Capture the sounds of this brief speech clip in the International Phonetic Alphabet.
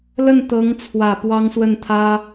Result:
l ə˥˩ n t̪ ɤ˧˥ ŋ t͡sʰ w ä˨˩ p w ɑ˥ ŋ s w ə˥˩ n t̪ʰ ä˥

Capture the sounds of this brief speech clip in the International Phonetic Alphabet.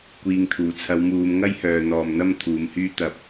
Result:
kʷ iː˨ ŋ t̪ʰ uː˨˩ t͡sʰ ɐ˨˧ w m uː˨˧ m ŋ ɐ˥ j h œː˨ n̪ ɔː˨ m n̪ ɐ˥ m t̪ʰ uː˨˧ m h yː˥ t̪ ɐ˧ p̚

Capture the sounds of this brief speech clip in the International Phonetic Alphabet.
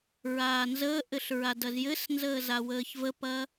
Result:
ɹ aː n z əː ʔ ɘ ɬ ɹ a d ɐ z j ɘ s n z əː z a w əː ç v ə p ɐ

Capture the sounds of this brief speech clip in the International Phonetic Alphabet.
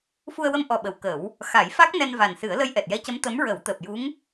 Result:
f u˧ ə̯ w ə˧ m ʔ ɔ˨˩ ɓ ə˨˩˨ w k ə˨˩˦ w | x a˨˩˦ j f a˦˥ k̚ n ɛ˧ n v a˨˩ n s ɨ˨˩˦ ə̯ l ə˧ j ʔ ɛ˨˩ t̚ j ɛ˧˥ c ə˧˥ m t̪ ə˧˥ m ɹ ə˨˩˦ w t̪ əː˨˩ p̚ j u˧˥ ŋ

